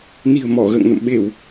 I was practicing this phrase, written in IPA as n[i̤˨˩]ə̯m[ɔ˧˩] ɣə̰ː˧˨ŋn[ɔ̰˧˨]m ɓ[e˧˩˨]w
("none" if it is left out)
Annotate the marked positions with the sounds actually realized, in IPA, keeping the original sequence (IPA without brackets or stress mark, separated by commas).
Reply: i̤˨˩, ɔ˧˩, ə̰˧˨, e˧˩˨